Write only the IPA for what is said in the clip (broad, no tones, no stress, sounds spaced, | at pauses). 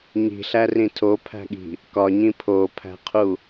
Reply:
ɲ i̤ ɬ æ r ĩ tʰ o pʰ æ̤ ɠ i̤ | k ɒ ɲ ĩ pʰ o pʰ æ̤ qʰ u